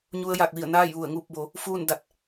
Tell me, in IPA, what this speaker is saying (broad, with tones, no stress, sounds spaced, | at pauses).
ɲ u˧ ə̯ j aː˧˩ k̚ ʋ i˧˩ ə̯ n aː˥˨ j ʋ u˧˩ ə̯ ŋ uː˥˨ p̚ b o˩˧ | f uː˥˨ n d a˧˩ t̚